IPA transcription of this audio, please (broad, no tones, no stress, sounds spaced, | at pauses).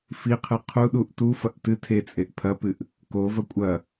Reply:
f i qʰ ɨ qʰ u ɗ u ʔ t u f ɐ ʔ t ɨ tʰ e t͡sʼ e ʔ pʰ ɐ p ɨ ʔ | k o v ɐ kʷʼ ɐ